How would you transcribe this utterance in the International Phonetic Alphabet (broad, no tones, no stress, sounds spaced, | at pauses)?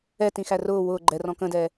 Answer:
ɛ t ĩ x æ r ʊː w ʊː ɡ͡ǃ ɛ r ɔ̃ k ə̃ d ɛ